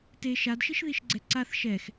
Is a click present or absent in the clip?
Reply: present